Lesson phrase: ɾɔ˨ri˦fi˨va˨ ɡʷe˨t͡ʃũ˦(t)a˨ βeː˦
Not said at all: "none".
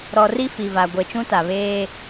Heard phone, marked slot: t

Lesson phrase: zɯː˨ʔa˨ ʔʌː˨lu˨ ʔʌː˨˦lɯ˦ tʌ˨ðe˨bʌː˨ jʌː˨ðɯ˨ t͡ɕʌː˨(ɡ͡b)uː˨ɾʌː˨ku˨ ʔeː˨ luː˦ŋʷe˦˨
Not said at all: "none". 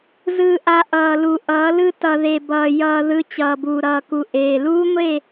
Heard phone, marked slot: b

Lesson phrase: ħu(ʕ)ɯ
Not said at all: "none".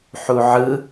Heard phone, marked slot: ʕ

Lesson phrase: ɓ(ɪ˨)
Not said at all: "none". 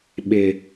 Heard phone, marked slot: ɪ˨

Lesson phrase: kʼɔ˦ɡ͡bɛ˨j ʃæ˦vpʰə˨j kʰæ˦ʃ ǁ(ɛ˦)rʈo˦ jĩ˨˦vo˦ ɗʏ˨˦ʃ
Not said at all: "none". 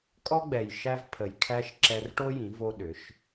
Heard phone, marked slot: ɛ˧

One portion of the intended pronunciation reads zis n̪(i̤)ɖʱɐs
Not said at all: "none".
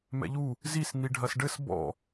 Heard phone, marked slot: i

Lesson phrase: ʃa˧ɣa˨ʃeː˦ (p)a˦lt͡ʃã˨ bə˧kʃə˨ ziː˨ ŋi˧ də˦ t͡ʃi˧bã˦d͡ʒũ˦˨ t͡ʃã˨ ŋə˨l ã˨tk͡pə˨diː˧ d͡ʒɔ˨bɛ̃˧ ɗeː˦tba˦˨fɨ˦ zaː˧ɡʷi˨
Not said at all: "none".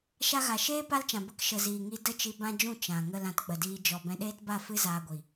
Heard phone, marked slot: p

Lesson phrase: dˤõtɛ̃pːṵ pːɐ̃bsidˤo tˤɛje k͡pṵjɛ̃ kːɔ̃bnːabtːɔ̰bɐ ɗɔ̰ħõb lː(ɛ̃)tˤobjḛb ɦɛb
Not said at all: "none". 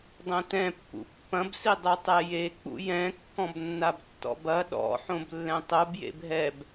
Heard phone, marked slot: ɛ̃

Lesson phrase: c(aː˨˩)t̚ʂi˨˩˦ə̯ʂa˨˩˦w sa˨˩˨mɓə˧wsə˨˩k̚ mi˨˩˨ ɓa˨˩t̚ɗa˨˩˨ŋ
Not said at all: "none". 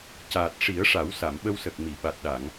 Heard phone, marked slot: aː˨˩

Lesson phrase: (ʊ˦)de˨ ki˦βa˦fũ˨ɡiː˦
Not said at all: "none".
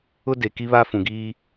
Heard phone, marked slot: ʊ˦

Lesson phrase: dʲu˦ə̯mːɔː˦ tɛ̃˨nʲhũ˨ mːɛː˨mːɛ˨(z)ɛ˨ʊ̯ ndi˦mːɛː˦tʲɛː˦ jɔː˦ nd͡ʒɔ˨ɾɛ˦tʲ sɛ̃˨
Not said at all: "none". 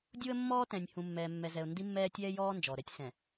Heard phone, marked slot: z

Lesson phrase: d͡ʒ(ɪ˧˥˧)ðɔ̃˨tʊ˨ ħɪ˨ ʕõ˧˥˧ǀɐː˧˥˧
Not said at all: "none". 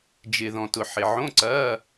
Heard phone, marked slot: ɪ˨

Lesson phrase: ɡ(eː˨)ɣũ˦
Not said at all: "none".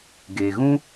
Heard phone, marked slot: e˨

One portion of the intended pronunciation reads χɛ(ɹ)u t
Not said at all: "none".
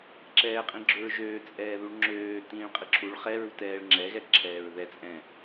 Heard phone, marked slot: ɹ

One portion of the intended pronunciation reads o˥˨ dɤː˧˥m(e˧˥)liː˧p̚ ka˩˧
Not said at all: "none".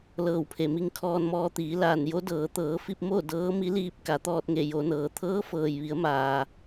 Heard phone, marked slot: i˧˥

